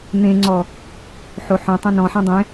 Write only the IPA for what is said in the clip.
n̪ ẽ ŋ͡ǀ ɔ | ħ o ħ õ tˤ ẽ n ɔ̃ ħ ɛ̃ dˤ ẽ

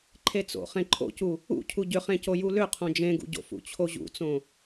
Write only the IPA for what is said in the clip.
ǃʰ e t͡s o̰ χ ẽ ǃʰ o̰ c u | ṵ cʰ u ɟ ʏ χ ẽ c o j u l ʏ qʰ õ d͡ʒ ẽ ɡ ṵ ɟ o̰ f ṵ t͡ɕʰ o ʑ ṵ t͡s õ

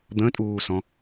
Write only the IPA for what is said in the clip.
d̪ ə̃ tʼ uː s ɔ̃

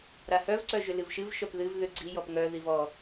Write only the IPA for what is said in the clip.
ɾ a h œ v ǀ œ ʒ ʏ l ɨ v ʃ ɨ v ʃ œ p ð ɨ v ð ʏ ɡ͡ǀ i j ɔ p ŋ œ ð i v ɔ

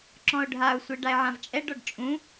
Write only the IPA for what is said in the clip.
ǁ ɔ̃ o̯ ɖʱ a o̯ sʷ e ɖ a e̯ ʕ ã v t͡ʃʼ ɛ ɖ ɔ ɖ t͡ʃʼ ũ

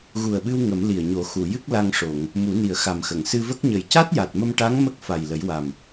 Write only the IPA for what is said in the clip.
ɣ u˨˩ ə̯ ɓ ɨ˧ w ŋ ə˨˩˦ m l i˨˩ ə̯ ɲ o˨˩˦ x u˨˩˨ j ɨ˦˥ k̚ l a˧ ŋ ʂ o˨˩˨ ŋ | m u˨˩˦ n i˨˩ ə̯ x a˨˩ m x ə˨˩˨ ŋ s ɨ˧ v ə˦˥ k̚ ɲ ə˨˩ j c a˦˥ t̚ j a˨˩ t̚ m ə˧ m ʈ a˧˥ ŋ m ə˦˥ k̚ f a˨˩ j l ə˨˩˦ j w a˨˩ m

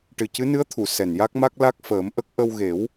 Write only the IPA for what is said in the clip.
ʈ ɨ˨˩ c ɨ˧˥ n ɨ˧˥ ə̯ t̪ʰ u˨˩˨ s ɛ˨˩ n j a˦˥ k̚ m a˦˥ k̚ l a˦˥ k̚ f əː˨˩˦ m ʔ ə˦˥ k̚ ʔ ə˧ w ɣ e˨˩˦ w

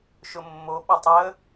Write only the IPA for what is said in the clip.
ʃ ʊ mː o ɓ ɐ tˤ əː

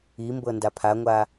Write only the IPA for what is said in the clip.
i m b ɤ n d a pʰ a ŋʷ a

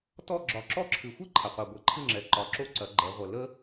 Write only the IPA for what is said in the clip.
t ɔ˥˨ ɡ͡ǁ ɒ˨˦ ǁ ɔ˥˨ ǁʰ ɨ˨ xʷ ɨ˥ ǃʰ ɐ˨ qʷ ɛ˨ ɡʷ ɛ˨˦ ǃʰ ɨ˥˨ ŋ͡ǁ ɛ˨ ǃ ɒ˨˦ ǁ o˥ ǀ ɐ˨˦ ɡ͡ǃ ɛ˨˦ ʁʷ ə˨ l ə˥

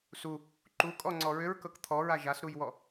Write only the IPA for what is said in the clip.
s u | ǃ u kʼ ɔ ŋ͡ǀ ɔ ɹ ʏ ɹ k ɤ k t̪ʰ ɔ ɹ a ʒ a s ɾ u j w ɔ

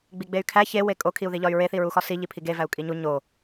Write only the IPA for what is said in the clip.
ɡ͡b i ɡ͡b e y̯ kʰ æ ç e w e kʼ o kʰ i u̯ ð i ʎ ɒ y̯ ɹ e θ i ɹ u x ɒ s i ʎ i pʰ i ɡ e v æ u̯ kʼ i ɲ u ɲ o

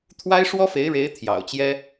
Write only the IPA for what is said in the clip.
t̪ʰ w a˥ ɪ̯ ʂ w ɔ˥ f e˧˥ ɪ̯ ɻ e˧˥ ɪ̯ t̪ʰ j ɑ̰˨˩ ʊ̯ t͡ɕ j ɛ˥

